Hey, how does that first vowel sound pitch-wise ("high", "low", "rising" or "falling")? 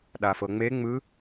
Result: low